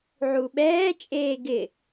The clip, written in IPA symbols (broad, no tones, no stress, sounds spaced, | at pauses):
ʕ u ɓ ɛː t͡ʃʼ eː ɡ ɪ